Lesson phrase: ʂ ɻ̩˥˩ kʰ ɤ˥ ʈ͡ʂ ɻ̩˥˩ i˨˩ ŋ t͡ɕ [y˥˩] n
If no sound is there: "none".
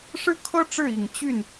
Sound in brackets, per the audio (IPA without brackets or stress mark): y˥˩